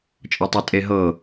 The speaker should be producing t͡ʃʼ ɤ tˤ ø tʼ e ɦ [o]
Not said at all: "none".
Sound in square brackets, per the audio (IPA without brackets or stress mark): ɤ